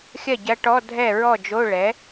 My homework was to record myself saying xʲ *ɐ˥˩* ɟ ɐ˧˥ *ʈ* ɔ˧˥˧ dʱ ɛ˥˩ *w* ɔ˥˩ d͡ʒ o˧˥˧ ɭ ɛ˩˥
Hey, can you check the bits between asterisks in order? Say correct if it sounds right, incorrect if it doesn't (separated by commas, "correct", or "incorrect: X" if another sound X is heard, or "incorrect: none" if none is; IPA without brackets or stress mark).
correct, correct, incorrect: ɹ